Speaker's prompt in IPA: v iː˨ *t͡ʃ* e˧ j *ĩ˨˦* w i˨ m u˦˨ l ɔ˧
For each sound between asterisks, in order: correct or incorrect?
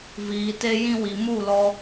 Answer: incorrect, incorrect

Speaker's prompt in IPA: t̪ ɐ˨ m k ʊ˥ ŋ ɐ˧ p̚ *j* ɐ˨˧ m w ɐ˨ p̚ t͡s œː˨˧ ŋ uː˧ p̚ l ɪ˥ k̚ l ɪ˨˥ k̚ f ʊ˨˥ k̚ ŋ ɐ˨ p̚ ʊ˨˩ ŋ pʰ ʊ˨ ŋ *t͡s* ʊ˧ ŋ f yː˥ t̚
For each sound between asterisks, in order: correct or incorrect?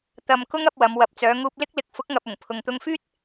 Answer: incorrect, incorrect

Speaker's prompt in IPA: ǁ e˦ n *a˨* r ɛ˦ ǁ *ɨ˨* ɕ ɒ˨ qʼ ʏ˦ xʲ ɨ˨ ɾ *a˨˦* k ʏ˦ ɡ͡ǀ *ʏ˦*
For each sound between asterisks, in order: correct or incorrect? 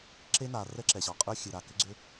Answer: correct, incorrect, incorrect, correct

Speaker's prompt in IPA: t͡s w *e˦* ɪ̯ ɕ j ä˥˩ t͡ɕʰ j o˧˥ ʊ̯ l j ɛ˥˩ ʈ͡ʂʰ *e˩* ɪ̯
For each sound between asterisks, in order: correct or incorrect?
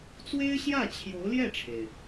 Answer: incorrect, correct

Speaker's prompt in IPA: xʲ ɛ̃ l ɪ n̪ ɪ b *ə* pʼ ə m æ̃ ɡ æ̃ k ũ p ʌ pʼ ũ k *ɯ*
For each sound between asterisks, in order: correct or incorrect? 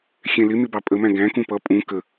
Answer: incorrect, incorrect

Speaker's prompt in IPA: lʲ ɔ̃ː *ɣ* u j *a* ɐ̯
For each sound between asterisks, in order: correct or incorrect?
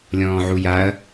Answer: incorrect, correct

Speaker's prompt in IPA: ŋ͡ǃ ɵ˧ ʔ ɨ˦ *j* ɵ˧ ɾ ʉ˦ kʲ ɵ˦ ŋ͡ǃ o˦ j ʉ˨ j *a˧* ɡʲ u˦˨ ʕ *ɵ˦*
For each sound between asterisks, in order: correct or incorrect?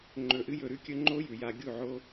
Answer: correct, correct, incorrect

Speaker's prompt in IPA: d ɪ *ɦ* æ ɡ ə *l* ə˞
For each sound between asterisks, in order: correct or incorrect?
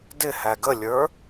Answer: incorrect, incorrect

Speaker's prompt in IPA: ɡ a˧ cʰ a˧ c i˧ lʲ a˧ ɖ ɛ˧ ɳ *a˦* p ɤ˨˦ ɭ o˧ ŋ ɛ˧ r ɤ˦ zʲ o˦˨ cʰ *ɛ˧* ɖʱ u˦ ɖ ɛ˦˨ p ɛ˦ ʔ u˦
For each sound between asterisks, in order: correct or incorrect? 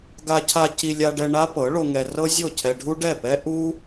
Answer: correct, correct

